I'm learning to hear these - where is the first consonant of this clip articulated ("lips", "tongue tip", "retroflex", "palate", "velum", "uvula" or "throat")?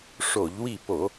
retroflex